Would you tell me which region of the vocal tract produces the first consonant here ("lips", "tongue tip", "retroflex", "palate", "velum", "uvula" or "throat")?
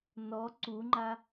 tongue tip